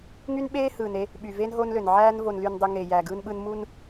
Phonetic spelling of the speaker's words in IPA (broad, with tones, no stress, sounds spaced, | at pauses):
ŋ y˦ n ɓ eː˦ h ɯː˨ n e˦ | ɓ y˨ v eː˦ n ɦ o˦ n l ø˨ n ʕ æː˦ n v o˨ n l y˨ n dˤ y˨ ŋ eː˨ j æː˨ ɡ ɯː˦ n ɓ ɯ˦ n m u˦ n